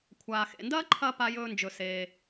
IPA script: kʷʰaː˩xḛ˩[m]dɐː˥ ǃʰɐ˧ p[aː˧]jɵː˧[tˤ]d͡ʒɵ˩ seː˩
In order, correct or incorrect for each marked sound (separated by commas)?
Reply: incorrect, incorrect, incorrect